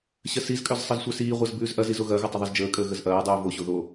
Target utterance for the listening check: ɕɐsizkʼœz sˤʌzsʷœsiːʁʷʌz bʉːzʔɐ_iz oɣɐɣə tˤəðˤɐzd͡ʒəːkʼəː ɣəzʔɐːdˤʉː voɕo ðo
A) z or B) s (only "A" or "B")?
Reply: A